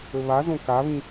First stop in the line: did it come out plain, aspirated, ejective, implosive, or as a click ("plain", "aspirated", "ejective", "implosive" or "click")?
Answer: plain